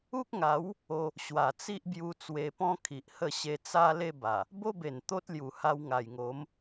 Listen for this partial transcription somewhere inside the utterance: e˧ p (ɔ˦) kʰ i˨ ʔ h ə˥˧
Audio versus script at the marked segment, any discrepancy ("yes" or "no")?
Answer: yes